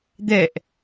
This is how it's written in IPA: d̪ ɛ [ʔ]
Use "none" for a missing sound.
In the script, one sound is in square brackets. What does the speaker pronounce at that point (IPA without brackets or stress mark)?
ʔ